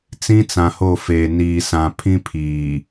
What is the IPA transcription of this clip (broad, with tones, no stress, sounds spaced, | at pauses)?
t͡s ĩ˦ t͡s ã˨ h o˦˨ f eː˨ n iː˨ s ã˨ pʰ ĩ˦ pʰ iː˨